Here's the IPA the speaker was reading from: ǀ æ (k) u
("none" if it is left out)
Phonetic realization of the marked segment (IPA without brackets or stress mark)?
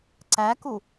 k